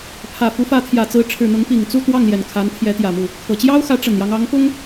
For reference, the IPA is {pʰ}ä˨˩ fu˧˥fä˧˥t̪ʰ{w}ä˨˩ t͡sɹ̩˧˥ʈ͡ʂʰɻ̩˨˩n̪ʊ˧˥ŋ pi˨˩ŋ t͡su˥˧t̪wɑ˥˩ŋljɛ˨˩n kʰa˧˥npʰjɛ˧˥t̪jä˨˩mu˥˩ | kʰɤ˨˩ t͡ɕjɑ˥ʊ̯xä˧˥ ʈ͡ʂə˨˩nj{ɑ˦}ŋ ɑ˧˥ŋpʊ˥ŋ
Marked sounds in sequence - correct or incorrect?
correct, incorrect: j, correct

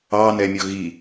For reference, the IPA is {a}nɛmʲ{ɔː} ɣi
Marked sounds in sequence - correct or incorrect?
incorrect: ɑ, incorrect: ɔ

